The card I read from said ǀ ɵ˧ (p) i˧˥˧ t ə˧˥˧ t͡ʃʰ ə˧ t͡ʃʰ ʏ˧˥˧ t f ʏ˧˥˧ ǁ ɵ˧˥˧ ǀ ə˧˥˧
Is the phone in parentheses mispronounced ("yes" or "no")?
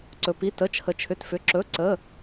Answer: no